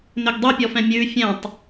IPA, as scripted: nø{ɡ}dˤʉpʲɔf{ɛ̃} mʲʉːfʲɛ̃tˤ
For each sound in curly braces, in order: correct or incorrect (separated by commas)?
correct, correct